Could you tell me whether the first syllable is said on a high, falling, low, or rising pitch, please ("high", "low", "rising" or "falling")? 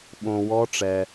low